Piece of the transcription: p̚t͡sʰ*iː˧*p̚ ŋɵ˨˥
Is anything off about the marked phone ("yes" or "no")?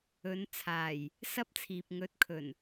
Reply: yes